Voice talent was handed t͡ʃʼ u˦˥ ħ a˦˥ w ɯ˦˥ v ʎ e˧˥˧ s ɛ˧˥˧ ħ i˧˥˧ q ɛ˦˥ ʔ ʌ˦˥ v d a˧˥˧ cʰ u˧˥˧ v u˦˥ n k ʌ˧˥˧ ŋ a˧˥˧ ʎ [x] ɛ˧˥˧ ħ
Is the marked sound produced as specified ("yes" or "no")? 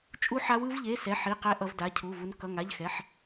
yes